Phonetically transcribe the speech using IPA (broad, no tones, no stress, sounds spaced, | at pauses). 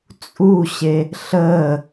t͡sʼ u ɕ e | ɬ əː